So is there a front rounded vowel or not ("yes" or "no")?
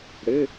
no